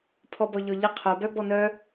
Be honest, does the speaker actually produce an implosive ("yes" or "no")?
no